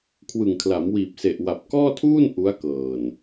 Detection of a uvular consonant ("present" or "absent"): absent